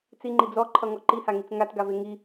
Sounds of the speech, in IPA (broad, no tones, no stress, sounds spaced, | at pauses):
t͡s i ŋ͡ǃ i d͡z ɔ ǃʰ ʌ ŋ ɔ ǃ i h a ŋ i t͡s ŋ a t ɡ a v e ŋ i